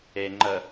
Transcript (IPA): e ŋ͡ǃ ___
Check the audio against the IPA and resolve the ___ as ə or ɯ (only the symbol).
ə